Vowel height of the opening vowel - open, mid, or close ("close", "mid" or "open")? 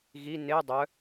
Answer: close